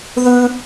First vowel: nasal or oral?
oral